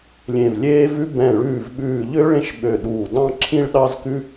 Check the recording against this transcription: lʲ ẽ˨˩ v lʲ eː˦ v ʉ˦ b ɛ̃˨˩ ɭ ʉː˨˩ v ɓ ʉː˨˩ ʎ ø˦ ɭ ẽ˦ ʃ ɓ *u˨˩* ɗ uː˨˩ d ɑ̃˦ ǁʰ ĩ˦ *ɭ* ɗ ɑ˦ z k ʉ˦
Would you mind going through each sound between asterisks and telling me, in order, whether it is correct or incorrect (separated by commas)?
incorrect, correct